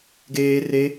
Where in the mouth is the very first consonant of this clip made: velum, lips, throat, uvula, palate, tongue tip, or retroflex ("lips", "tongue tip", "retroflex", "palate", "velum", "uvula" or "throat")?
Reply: velum